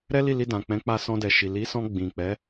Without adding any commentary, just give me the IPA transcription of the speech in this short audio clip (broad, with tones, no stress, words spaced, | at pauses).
ɾɛ˦li˦˨li˧ dã˨k͡pɛ̃˨˦k͡pa˧ sɔ̃˧dɛ˨ʃi˨ li˨˦sɔ̃˧ ɡ͡bĩ˨k͡pɛ˨˦